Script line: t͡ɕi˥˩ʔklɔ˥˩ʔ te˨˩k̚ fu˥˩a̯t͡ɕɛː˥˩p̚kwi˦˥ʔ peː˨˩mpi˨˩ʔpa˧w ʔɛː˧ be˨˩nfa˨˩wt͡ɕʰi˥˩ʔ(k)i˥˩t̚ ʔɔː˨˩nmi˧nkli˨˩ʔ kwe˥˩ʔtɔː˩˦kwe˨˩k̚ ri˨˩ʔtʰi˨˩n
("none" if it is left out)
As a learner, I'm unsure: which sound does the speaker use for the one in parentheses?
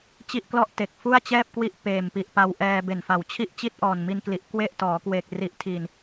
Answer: t͡ɕ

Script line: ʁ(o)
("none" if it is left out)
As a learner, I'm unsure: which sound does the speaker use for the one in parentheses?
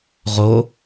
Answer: o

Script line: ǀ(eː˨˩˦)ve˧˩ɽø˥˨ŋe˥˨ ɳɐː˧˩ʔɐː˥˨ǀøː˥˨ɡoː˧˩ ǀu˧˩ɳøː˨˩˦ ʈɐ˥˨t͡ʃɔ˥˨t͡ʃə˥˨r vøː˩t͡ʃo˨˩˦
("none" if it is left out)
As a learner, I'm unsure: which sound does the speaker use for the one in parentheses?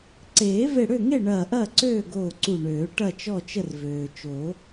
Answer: eː˨˩˦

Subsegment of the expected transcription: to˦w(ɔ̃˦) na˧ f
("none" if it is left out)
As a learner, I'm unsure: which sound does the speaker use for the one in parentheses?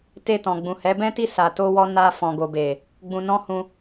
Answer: ɔ˦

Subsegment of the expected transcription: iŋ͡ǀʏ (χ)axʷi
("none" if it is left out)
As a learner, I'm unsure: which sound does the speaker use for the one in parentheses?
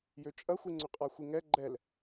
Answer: qʼ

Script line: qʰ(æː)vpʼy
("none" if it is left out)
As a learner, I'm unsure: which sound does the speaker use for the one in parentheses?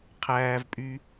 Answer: æː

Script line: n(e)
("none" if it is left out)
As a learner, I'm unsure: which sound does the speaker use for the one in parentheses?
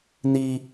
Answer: i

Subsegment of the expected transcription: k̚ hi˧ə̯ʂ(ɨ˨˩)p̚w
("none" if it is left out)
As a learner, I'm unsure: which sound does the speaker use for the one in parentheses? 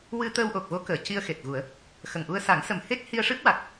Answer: ɨ˦˥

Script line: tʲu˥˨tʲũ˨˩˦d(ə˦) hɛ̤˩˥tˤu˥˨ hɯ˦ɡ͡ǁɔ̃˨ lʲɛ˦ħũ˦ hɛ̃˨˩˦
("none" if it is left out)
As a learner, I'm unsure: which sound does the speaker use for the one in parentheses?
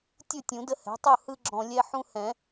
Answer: ə˦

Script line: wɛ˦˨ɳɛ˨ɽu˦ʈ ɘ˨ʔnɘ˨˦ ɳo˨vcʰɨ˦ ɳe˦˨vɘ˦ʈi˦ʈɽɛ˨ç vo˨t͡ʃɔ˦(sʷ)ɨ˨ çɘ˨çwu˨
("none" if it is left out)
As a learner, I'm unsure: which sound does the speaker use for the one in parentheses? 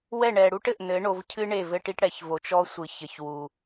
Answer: sʷ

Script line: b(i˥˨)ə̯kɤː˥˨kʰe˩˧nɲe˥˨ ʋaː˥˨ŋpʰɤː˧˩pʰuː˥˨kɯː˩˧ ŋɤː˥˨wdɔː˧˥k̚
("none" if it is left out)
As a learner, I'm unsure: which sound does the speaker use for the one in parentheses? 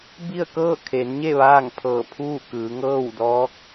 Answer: i˥˨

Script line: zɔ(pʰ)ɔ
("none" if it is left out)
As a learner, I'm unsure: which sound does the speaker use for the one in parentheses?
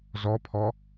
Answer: pʰ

